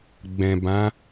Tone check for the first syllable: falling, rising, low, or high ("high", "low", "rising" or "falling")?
low